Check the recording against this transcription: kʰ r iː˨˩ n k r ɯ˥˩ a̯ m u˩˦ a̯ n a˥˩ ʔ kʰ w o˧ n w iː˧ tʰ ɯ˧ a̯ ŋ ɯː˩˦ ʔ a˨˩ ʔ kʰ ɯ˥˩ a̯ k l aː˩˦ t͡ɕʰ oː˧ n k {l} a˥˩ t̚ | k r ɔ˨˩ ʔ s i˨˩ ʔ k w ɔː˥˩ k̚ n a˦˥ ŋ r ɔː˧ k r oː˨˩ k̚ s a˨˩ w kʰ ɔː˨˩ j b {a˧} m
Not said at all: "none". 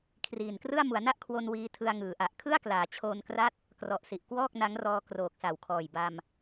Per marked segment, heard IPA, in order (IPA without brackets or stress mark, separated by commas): r, a˧